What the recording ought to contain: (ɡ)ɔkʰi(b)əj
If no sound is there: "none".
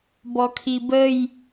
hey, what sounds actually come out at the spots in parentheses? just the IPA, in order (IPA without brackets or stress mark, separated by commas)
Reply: b, b